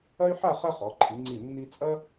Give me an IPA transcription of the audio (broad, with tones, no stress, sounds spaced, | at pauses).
ɐ˥ y̯ ħ a˥˧ χ ɐ˥ χ ɔ˩˧ ǃʰ i˩˧ ŋ͡ǀ i˧˩ nː i˧ t͡sʼ ɐ˥